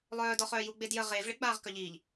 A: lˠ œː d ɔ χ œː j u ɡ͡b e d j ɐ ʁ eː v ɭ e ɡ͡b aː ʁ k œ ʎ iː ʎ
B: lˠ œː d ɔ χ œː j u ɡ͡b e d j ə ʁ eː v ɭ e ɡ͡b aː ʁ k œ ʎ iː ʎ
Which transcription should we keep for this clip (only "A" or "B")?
B